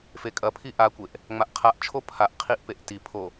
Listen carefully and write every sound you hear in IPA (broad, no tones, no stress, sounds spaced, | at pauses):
f e kʼ ɐ pʰ i ʔ a kʷ e ʔ | ŋ͡m a ʔ qʰ a ʔ t͡ʃʰ o pʰ a ʔ qʰ i ʔ p e ʔ t i pʰ o